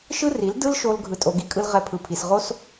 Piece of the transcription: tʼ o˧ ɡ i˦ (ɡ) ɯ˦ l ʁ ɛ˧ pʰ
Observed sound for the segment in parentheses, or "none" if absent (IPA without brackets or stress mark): kʼ